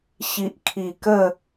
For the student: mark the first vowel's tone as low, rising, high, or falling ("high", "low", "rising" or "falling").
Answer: low